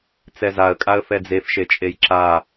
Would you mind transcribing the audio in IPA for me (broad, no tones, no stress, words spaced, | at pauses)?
t͡sɛzaə̯kʼaə̯ fɛd͡zefʃet͡ʃʼej ǁa